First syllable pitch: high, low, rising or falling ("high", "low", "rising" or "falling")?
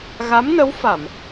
rising